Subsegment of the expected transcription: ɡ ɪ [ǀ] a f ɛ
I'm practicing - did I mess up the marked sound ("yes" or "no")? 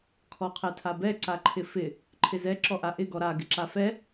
yes